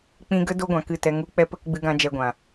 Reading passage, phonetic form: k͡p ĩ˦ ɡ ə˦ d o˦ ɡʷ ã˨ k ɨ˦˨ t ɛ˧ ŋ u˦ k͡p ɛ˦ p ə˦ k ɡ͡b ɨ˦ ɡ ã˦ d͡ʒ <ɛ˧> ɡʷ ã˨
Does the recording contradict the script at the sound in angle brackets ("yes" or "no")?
no